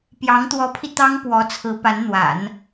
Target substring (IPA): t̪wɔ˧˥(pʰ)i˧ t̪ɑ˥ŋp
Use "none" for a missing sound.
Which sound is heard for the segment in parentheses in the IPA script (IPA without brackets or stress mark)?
pʰ